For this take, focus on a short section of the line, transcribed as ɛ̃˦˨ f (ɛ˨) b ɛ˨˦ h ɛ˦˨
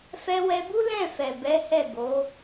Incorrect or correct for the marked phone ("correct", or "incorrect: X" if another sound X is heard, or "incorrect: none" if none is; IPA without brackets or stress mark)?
correct